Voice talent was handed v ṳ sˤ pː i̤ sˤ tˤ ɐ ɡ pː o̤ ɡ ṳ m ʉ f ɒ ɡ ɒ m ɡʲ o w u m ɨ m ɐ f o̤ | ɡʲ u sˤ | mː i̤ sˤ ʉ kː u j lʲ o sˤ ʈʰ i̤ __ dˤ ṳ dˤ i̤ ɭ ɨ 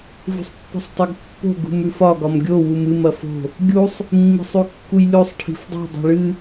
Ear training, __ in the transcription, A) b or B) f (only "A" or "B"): B